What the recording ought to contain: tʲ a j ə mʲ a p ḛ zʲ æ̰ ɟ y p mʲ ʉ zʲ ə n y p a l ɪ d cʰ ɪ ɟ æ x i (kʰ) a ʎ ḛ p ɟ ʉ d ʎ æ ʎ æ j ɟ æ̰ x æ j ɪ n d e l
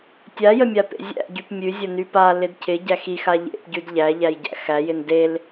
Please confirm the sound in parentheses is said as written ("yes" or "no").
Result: no